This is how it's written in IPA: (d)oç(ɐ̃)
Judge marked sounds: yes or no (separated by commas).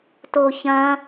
no, yes